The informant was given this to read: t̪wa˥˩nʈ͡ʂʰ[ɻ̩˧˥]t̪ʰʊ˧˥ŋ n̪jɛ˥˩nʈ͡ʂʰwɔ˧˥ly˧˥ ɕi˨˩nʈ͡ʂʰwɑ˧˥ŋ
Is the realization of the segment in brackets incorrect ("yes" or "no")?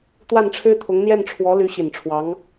yes